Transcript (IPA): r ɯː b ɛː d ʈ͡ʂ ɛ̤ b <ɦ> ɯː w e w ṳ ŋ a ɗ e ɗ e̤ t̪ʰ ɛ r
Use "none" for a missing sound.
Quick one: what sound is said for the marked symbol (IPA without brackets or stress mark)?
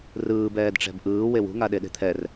ʔ